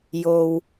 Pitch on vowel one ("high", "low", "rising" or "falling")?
low